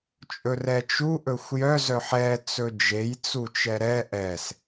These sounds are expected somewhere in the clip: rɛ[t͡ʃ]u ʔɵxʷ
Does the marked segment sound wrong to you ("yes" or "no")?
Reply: no